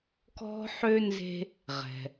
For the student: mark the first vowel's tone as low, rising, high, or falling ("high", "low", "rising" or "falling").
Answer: high